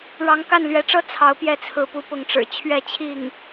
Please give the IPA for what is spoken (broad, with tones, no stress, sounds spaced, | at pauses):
ɻ ɑ˧˥ ŋ k a˥˩ n l ɥ ɛ˧˥ ʈ͡ʂ ɤ˥ t͡sʰ ɑ˧˥ ʊ̯ p j ɛ˥˩ t͡sʰ ɹ̩˧˥ p u˧˥ p ʊ˧˥ ŋ ʈ͡ʂ ɻ̩˨˩ t͡ɕʰ ɥ ɛ˥˧ t͡ɕʰ i˥˩ ŋ